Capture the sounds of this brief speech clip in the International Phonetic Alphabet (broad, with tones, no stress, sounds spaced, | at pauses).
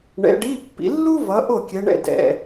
ɳ ɛ̰˨˦ ɖ i˧˥˧ pː ḭ˨˦ lː u˥ v ʌ˨˦ ʔ o˥˩ kʲ ɛ˨˦ ɳ ɛ̰˥˩ d ɛ̰˨˩